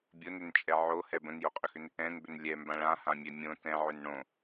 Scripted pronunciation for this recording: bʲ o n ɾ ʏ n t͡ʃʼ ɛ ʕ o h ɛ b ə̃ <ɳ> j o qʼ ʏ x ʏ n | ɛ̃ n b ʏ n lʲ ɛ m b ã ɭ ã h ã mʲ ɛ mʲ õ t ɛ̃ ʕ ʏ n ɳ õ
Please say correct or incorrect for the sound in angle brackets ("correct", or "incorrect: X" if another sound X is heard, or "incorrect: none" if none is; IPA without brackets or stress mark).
incorrect: n